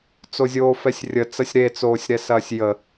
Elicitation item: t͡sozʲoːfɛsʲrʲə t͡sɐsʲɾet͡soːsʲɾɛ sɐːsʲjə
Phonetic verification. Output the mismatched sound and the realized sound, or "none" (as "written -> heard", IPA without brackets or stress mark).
none